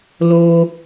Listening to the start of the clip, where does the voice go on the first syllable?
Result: high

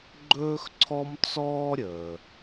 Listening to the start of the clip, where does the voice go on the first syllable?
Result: high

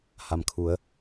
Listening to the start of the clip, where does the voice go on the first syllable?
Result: low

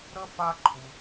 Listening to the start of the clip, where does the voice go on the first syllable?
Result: high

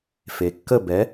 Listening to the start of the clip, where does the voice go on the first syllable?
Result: low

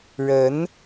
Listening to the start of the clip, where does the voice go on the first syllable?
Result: rising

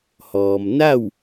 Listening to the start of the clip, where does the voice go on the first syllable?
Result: low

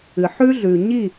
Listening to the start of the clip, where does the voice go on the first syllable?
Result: low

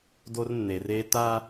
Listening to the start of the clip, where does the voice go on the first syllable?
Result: high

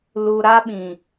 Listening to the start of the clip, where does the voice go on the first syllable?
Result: low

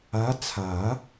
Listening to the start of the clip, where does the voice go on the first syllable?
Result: rising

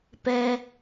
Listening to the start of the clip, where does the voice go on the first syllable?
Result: low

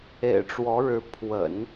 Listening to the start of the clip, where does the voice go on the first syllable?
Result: low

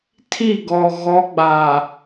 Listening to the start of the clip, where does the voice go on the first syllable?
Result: falling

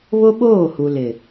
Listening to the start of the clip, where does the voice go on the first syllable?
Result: high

